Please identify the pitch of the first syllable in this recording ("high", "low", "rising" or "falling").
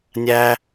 high